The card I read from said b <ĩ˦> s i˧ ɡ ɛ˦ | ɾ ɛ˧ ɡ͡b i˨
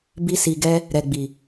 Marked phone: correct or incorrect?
incorrect